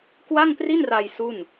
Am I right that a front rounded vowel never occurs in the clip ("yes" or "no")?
yes